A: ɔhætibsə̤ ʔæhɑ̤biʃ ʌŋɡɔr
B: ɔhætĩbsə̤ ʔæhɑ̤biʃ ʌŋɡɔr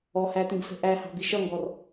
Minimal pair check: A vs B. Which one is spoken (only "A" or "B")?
B